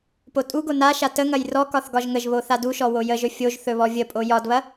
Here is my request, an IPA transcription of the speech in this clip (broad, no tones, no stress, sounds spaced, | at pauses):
p o tʼ u ɡ o n a ʃ a t ə ŋ ɐ j r ɔ k ɒ θ ɡ ɒ ʒ ŋ ə ʒ β o θ a d u ʃ ɔ w o j ə ʒ ɵ fʲ o ʒ θ ɵ β ɔ vʲ ə pʼ o j ɒ d β ɐ